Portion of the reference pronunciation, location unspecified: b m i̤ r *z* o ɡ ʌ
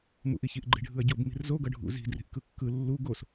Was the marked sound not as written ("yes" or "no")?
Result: no